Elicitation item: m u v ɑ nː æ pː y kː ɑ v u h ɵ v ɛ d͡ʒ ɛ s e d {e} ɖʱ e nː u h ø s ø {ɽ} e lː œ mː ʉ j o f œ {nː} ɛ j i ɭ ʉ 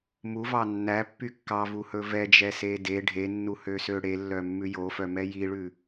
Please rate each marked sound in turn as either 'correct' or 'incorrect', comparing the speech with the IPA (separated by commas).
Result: correct, correct, incorrect